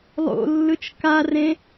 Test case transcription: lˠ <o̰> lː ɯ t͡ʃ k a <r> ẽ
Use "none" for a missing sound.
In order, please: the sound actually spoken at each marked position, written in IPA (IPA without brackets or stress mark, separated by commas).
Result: o̰, r